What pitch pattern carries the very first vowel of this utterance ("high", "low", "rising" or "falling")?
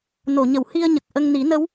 low